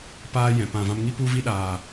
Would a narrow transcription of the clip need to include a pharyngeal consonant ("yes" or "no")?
no